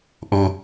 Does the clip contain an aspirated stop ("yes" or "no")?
no